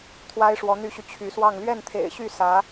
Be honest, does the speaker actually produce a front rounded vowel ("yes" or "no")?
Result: yes